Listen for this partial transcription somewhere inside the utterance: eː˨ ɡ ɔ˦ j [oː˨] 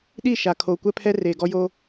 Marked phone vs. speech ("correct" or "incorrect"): incorrect